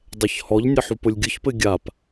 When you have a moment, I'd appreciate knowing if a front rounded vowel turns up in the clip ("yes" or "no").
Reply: no